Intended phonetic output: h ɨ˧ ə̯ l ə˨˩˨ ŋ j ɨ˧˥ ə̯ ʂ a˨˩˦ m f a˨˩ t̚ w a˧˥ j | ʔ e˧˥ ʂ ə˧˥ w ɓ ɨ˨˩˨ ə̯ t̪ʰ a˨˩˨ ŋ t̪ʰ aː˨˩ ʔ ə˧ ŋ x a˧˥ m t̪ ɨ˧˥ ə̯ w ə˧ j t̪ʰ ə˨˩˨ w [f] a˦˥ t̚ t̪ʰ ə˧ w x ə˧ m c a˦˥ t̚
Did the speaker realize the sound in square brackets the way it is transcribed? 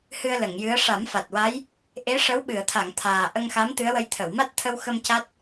no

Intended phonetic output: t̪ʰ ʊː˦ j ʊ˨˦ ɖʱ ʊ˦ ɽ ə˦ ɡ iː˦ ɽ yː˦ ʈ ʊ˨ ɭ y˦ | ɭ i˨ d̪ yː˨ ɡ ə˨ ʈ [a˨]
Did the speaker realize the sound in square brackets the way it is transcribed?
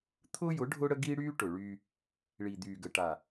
yes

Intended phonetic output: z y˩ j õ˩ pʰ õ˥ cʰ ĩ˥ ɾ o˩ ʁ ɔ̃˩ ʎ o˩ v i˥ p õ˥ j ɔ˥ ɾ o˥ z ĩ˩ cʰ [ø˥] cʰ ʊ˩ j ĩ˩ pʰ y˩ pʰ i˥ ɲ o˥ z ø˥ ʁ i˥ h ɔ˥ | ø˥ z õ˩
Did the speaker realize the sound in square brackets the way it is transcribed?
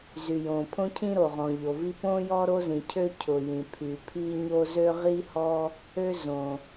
yes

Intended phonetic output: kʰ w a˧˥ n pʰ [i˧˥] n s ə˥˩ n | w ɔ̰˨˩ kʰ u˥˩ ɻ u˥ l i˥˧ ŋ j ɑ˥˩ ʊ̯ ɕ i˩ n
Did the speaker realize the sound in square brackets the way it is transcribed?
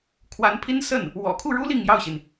no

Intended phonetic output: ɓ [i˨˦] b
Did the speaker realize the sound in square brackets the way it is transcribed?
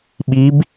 yes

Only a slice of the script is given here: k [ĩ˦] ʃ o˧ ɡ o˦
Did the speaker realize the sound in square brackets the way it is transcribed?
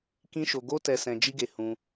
yes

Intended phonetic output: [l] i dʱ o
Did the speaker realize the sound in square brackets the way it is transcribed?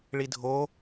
no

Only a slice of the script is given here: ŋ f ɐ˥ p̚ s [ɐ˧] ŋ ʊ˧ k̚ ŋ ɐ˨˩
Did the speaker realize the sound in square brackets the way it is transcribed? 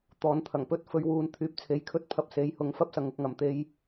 no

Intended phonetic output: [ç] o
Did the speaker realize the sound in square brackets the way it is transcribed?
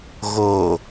no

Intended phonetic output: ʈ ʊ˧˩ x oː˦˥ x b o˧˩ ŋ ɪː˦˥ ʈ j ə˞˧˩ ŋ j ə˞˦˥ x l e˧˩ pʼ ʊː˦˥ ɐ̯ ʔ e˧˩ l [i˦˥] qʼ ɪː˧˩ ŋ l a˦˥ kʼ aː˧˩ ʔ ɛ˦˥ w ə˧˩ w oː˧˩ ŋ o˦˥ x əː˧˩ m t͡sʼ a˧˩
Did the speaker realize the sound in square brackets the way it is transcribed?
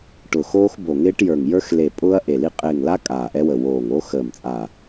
yes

